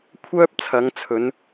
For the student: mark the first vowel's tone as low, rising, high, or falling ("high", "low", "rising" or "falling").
high